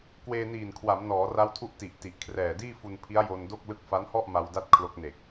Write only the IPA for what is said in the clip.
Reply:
k w eː˧ n iː˨˩ n kʰ w a˩˦ m n ɔː˩˦ r a˦˥ w tʰ u˦˥ ʔ t i˨˩ ʔ t i˨˩ ʔ kʰ r ɛː˨˩ d iː˥˩ f u˧ n pʰ i˦˥ a̯ j o˧ n d o˥˩ k̚ l ɯ˦˥ k̚ f a˦˥ n h ɔ˥˩ ʔ m a˧ w d a˥˩ t̚ kʰ l o˦˥ k̚ n e˨˩ k̚

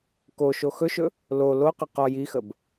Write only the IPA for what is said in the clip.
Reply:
k o ʃ o x ɵ ʃ ɵ | l o l o q ə q ɔ j i x ə b

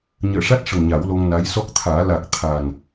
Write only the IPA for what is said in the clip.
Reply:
ɲ əː˨˩˨ ʂ a˦˥ t̚ ʂ ə˨˩ ŋ ɲ a˨˩˦ w l o˧ ŋ n a˧˥ j s ɔ˦˥ k̚ t̪ʰ aː˨˩˦ l a˨˩ k̚ t̪ʰ a˨˩ n

